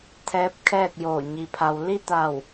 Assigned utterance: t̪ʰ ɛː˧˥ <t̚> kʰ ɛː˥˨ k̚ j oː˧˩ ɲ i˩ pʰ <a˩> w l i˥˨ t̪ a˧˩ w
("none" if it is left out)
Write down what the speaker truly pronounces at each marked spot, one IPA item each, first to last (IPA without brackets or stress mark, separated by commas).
p̚, a˩